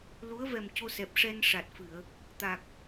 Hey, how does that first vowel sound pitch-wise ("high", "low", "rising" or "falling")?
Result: rising